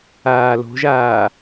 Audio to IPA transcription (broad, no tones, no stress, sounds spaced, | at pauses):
aː l o̤ ʒ aː